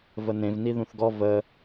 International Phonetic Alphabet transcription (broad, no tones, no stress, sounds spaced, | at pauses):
v ə n ẽ v n i ð ũ θ ɡ ɔ v ə